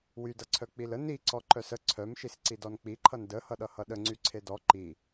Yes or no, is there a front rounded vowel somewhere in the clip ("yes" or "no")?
yes